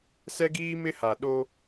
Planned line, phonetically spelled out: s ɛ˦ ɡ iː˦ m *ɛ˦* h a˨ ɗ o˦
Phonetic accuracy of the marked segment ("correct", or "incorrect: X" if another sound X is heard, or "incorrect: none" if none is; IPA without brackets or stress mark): incorrect: ɪ˦